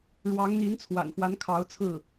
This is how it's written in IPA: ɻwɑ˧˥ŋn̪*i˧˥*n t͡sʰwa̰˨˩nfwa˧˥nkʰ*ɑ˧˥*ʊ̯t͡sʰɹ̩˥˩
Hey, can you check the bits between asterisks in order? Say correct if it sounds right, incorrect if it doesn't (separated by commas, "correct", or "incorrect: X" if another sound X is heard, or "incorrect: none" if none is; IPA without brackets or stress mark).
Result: correct, correct